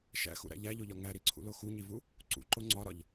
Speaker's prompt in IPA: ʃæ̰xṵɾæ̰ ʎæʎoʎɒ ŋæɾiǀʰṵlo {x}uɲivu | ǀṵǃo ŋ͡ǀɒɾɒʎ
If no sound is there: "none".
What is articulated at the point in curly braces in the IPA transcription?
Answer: x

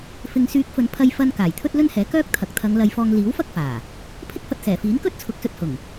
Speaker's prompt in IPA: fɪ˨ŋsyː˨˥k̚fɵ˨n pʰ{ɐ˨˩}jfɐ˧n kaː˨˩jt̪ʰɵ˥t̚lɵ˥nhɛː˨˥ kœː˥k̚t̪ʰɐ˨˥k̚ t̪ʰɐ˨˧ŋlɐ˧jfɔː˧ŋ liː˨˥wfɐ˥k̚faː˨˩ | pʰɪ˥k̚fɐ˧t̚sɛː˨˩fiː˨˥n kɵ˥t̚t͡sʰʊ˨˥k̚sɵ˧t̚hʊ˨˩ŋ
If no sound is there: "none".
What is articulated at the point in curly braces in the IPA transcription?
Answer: ɐ˧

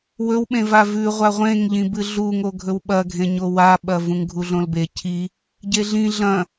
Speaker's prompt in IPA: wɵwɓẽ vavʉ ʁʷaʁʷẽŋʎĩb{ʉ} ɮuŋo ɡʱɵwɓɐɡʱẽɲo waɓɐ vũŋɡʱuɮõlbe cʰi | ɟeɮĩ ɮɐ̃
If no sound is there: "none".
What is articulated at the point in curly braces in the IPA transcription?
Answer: ɨ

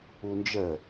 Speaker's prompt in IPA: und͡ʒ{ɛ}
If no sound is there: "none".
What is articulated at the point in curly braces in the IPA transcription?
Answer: ə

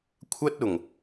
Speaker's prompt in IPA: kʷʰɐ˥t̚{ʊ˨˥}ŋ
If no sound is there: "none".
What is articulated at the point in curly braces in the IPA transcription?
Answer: ʊ˨˩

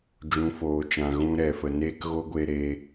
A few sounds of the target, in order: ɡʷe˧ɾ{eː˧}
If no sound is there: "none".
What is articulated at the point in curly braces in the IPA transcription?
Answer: e˧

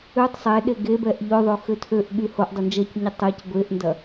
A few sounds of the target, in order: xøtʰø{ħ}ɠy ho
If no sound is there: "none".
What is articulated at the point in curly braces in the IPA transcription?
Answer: ʔ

